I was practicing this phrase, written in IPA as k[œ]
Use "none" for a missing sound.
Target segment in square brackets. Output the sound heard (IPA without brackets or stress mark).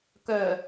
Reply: œ